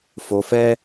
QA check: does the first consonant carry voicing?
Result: no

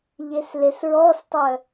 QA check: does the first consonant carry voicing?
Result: yes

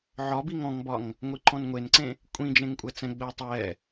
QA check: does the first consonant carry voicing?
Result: yes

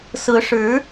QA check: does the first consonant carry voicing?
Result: no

